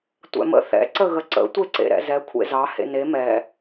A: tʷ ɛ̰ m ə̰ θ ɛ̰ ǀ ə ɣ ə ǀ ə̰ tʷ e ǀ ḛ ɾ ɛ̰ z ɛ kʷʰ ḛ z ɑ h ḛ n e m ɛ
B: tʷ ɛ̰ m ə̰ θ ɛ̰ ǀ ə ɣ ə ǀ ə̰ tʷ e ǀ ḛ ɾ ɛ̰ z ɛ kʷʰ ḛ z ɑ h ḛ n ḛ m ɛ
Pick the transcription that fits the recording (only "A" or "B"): A